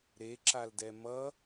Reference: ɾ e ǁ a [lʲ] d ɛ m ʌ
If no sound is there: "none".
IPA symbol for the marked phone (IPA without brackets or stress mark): l